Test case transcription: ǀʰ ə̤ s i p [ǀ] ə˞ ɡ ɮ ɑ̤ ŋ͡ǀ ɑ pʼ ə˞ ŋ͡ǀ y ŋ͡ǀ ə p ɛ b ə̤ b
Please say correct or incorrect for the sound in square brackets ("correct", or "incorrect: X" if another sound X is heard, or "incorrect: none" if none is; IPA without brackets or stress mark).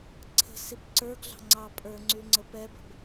correct